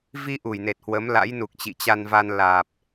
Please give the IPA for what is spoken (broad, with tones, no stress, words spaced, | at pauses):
vi˧ ʔu˧˩jne˨˩t̚hwə˨˦m la̰˧˥jnu˨˩k̚ t͡ɕḭ˧˨t͡ɕa˧nva˧n laː˨˩p̚